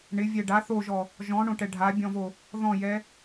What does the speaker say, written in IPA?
ɳ ɪ vʲ ɛ ɖ a θ o ʒ ɔ | ʒ ɔ̃ ɳ õ ʈ ɛ ɖʱ a bʲ ɔ̃ v o | ð ɔ̃ j ɛ

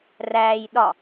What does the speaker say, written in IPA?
r æː j ɗ ɒ

